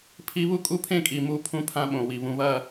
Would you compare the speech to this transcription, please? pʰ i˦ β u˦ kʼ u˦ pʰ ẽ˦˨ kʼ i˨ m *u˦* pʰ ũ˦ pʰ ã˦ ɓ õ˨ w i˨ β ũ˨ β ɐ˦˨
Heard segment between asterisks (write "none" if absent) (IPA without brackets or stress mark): u˦